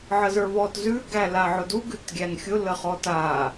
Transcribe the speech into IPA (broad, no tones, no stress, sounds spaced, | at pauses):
ʕ ə z ə˞ β ɔ t z ʉ ɡ æ l a ʕ ʊ d u ɡ ʉ t ɡʲ æ n xʲ ʊ l ə χ ɔ t a